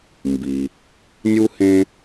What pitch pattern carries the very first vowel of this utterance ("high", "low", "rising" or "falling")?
low